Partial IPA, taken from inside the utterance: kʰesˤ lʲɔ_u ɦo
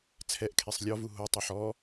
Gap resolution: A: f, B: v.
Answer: B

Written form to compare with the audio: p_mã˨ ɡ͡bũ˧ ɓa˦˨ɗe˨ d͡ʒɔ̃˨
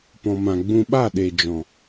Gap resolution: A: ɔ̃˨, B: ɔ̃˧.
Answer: A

